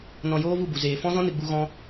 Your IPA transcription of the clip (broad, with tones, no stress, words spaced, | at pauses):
nɔ̃˧joː˦vu˦˨bu˨ zeː˨fɔ̃˦zɔ̃˦ nɨ˨ɡ͡bu˧ ɣɔ̃˦